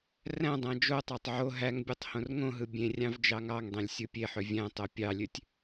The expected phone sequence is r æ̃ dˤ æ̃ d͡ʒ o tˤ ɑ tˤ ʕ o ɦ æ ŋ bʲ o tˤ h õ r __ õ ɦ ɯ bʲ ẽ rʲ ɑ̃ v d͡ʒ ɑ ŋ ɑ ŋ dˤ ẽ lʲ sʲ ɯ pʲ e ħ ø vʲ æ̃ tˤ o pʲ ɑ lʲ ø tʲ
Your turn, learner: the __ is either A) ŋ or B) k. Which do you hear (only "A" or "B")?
A